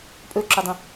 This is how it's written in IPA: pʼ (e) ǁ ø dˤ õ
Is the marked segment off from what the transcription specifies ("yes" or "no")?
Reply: yes